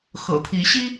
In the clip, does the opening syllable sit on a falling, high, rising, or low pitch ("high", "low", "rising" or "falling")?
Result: low